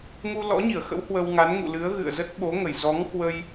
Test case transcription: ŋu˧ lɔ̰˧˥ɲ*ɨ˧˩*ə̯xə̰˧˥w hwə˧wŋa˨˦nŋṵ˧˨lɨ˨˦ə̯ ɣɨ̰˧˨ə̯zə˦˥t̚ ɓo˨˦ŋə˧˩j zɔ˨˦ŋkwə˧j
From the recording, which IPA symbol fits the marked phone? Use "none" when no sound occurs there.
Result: i˧˩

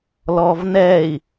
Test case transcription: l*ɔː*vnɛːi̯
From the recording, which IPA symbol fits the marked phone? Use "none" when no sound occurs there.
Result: ɔː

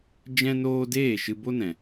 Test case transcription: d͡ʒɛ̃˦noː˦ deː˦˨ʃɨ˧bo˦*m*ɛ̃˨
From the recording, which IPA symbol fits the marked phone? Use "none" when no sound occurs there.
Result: n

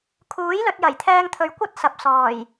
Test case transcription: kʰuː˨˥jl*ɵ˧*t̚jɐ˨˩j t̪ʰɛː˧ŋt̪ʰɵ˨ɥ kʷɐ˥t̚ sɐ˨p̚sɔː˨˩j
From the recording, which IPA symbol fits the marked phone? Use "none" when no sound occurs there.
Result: ɵ˧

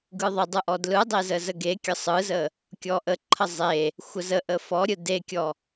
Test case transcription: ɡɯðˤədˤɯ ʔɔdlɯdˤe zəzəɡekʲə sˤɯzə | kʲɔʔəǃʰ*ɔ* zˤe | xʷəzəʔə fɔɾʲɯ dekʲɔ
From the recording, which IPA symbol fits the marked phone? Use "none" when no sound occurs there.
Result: ə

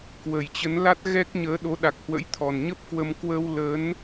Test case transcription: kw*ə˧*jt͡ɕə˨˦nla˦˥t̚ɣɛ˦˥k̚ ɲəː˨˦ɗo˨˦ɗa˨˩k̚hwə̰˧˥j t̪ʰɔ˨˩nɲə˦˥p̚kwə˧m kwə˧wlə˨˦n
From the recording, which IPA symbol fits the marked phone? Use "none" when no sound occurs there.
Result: ə˨˩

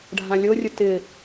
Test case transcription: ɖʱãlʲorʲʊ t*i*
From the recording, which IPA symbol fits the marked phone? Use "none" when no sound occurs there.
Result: ɪ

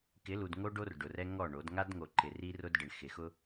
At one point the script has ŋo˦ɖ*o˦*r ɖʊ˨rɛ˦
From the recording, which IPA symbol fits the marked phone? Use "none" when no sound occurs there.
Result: o˦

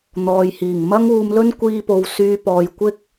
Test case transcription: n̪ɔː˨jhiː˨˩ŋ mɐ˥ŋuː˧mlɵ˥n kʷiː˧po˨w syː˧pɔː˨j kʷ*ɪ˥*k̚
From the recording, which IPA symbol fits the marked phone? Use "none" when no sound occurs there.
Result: ɪ˥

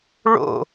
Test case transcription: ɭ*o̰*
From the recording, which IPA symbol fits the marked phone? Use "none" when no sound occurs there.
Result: o̰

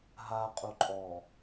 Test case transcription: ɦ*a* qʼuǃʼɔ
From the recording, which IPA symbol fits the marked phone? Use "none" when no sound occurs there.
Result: a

